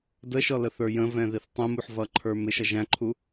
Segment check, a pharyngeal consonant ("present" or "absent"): present